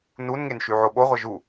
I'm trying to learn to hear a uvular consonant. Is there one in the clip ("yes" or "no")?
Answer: yes